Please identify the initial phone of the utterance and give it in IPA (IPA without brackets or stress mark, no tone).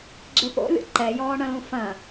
ɡ͡ǁ